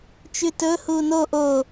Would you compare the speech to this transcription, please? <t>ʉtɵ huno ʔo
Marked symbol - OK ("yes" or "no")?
no